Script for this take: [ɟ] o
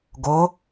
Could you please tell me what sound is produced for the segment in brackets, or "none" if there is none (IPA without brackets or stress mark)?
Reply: ɡ